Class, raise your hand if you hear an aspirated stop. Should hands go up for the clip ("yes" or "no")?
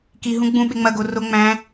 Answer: no